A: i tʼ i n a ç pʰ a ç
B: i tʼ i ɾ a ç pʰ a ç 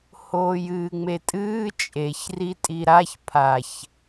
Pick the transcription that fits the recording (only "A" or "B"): B